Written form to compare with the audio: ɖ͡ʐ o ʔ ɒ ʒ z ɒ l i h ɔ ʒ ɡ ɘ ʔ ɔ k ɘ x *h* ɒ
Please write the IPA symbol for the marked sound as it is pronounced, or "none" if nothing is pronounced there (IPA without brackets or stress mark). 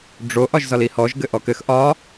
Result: ʔ